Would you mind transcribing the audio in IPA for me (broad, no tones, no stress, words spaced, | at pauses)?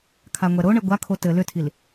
kʰaŋʷɛɾoɳɘ ɡʷakʰo tɘ lʏtʰil